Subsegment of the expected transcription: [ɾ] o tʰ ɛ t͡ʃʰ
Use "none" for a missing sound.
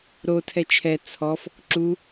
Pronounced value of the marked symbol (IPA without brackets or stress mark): ɾ